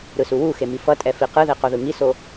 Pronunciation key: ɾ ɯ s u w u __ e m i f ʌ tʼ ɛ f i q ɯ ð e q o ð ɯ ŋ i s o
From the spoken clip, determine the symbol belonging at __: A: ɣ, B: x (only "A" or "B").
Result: B